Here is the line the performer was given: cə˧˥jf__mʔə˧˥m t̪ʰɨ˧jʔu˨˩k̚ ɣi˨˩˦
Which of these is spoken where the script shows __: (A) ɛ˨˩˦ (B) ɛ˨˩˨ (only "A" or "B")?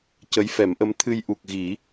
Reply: A